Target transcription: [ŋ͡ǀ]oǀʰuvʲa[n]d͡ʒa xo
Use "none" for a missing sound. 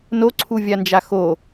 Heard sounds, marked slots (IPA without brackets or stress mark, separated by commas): n, n